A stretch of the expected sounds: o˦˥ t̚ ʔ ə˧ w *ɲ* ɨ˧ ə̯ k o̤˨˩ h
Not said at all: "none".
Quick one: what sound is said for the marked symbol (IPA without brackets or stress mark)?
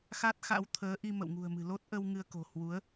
ŋ